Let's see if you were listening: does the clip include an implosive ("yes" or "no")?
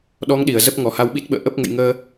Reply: yes